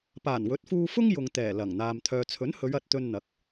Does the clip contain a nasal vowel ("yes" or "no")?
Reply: no